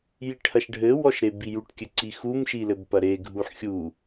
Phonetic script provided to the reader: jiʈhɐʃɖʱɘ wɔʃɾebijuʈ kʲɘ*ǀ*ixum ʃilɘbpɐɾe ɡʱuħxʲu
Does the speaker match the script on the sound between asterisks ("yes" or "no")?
yes